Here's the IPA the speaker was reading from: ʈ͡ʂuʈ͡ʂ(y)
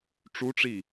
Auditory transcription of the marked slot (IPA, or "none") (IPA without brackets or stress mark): i